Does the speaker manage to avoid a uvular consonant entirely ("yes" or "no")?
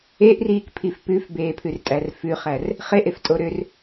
no